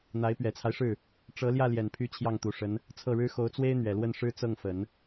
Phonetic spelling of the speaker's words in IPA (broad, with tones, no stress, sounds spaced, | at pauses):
n̪ a˧˥ ɪ̯ p ɥ ɛ˨˩ t͡sʰ a˦ ɪ̯ ʂ ɻ̩˥˩ | ʈ͡ʂ ɤ˧˥ l j ä˥˩ l j ɛ˨˩ n pʰ y˧˥ t͡ɕʰ j ɑ˥˩ ŋ t̪ u˨˩ ʂ ə˧˥ n | t͡sʰ ɤ˥˩ ɻ ɻ̩˥ x o˧˥ ʊ̯ t͡s w e˥ ɪ̯ n̪ ɥ ɛ˨˩ l w ə˥˩ n ʂ ɻ̩˥ t͡s ɤ˥˩ ŋ f ə˨˩˦ n